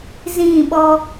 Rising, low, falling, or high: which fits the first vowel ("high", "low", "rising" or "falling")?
falling